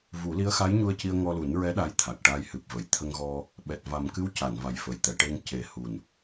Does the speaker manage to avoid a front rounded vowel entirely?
yes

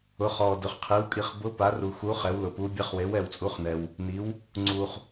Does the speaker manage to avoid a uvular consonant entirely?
no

